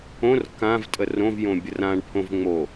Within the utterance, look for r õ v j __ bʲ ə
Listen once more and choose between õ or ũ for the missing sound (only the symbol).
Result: õ